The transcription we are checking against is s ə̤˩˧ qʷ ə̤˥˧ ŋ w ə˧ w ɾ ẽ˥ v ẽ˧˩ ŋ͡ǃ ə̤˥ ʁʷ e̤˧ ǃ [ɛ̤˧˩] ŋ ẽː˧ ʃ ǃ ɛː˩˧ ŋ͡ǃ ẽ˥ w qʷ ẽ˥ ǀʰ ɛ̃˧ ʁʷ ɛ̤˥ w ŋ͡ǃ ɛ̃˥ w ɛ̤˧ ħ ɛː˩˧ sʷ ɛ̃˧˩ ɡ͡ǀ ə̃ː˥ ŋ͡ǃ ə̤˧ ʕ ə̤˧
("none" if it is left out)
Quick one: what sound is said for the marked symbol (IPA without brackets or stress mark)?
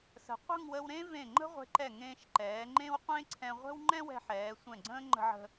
ɛ˧˩